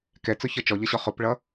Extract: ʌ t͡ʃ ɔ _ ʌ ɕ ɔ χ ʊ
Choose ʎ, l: ʎ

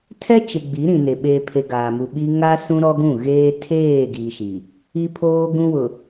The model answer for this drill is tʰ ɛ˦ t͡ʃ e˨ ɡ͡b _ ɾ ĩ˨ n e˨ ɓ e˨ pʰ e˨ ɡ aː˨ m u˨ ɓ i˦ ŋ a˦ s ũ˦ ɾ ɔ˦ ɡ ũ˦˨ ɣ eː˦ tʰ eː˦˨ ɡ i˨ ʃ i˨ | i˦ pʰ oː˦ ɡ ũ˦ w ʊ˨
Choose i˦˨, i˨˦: i˨˦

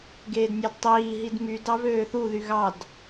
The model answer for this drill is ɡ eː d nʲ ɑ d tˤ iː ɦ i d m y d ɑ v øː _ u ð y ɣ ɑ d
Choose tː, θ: θ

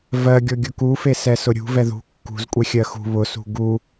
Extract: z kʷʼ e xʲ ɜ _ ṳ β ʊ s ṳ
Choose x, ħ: x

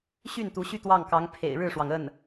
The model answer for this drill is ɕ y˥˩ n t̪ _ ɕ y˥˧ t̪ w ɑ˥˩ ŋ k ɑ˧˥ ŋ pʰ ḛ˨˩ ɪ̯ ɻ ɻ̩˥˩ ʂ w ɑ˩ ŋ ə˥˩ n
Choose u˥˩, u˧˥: u˧˥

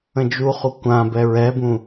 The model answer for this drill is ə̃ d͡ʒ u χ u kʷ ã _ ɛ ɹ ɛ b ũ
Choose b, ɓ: b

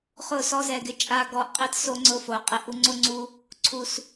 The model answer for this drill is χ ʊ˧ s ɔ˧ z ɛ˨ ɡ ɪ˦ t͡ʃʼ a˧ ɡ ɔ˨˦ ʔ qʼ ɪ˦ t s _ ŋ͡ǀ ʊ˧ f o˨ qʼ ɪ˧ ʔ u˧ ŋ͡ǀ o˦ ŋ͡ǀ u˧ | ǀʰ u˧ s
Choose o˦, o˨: o˦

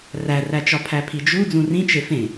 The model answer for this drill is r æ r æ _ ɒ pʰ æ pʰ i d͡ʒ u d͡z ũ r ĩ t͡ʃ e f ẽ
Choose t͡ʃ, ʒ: t͡ʃ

